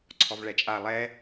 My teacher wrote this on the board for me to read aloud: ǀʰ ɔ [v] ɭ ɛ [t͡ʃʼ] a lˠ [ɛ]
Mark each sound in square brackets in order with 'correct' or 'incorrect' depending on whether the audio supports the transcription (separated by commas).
correct, correct, correct